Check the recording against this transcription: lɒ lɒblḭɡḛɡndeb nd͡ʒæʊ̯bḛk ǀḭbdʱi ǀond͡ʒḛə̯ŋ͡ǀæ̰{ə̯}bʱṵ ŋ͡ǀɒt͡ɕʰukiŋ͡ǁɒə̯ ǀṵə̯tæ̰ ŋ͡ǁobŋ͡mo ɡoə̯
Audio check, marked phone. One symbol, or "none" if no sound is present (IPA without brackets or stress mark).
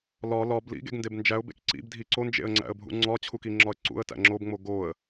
ə̯